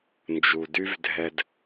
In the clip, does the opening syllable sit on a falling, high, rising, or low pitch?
low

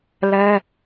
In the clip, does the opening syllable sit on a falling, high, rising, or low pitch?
high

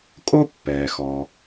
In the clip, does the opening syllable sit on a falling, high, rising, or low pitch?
high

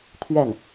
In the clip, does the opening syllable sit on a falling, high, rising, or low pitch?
falling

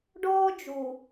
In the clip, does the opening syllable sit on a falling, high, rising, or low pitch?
high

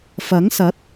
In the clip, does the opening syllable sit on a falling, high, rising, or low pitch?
rising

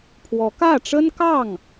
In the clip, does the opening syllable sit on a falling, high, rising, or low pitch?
rising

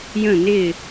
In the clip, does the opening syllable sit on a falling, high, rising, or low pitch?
falling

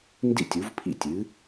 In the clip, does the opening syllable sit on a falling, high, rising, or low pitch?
falling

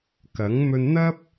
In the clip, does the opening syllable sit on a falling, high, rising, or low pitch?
rising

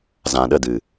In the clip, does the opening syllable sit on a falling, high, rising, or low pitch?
low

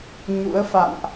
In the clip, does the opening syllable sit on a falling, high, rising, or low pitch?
rising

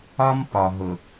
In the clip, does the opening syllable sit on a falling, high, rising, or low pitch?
high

